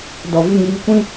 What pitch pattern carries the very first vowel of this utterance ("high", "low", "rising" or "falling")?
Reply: low